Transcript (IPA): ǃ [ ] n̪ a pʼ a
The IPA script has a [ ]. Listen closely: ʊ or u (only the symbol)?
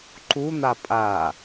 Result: u